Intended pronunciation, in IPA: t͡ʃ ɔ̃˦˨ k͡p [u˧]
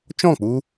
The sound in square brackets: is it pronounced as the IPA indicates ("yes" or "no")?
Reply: yes